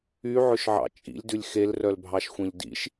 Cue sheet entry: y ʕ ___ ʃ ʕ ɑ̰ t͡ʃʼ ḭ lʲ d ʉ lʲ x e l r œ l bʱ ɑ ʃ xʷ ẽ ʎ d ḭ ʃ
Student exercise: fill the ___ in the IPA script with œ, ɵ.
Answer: ɵ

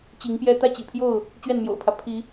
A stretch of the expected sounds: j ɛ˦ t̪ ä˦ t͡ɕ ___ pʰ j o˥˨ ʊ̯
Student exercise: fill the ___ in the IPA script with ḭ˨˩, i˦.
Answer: ḭ˨˩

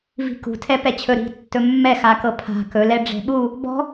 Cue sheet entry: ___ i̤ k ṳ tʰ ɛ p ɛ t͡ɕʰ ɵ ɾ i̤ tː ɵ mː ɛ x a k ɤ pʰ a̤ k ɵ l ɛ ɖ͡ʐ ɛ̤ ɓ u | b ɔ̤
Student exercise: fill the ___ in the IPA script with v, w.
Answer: v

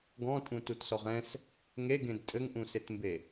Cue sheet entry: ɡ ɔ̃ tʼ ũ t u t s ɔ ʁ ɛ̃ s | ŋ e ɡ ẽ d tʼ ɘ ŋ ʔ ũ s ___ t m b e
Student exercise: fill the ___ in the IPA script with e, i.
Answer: e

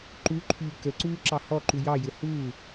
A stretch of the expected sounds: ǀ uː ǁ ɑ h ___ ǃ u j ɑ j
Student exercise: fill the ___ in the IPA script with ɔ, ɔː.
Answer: ɔ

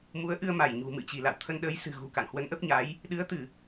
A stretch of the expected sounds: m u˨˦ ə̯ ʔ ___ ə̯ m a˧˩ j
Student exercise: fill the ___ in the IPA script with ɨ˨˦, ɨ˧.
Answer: ɨ˧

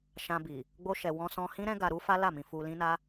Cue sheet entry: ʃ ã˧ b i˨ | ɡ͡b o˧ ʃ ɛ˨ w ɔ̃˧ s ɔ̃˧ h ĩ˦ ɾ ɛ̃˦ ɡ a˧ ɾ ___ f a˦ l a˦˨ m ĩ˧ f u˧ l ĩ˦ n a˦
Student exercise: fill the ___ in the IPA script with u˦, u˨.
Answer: u˦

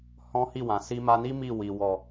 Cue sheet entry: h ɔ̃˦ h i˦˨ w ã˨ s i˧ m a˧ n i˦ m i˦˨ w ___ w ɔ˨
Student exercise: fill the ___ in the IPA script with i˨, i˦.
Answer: i˨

